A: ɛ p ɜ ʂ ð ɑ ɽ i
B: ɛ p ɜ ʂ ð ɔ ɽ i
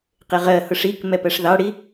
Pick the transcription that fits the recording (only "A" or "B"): A